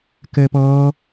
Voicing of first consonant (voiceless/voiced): voiceless